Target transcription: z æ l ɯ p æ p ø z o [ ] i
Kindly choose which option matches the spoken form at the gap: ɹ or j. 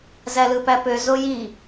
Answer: j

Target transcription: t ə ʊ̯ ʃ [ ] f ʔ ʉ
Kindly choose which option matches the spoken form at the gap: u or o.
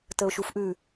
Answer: u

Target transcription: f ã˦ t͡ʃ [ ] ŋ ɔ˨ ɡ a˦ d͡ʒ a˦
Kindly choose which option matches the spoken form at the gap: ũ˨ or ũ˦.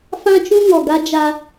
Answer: ũ˦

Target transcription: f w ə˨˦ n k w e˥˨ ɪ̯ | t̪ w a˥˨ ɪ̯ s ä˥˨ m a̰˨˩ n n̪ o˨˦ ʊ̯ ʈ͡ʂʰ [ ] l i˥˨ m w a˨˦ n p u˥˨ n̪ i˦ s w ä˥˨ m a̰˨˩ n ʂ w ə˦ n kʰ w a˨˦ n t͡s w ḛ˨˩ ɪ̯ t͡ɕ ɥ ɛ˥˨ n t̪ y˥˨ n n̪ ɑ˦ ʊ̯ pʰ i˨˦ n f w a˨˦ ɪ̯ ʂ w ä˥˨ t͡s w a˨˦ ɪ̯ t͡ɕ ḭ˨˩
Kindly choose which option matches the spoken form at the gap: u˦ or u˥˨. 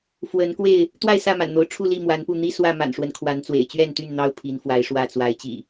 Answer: u˥˨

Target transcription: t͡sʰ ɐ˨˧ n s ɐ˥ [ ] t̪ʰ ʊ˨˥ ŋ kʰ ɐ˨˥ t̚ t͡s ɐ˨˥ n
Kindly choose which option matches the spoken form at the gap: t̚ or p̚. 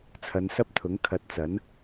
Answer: p̚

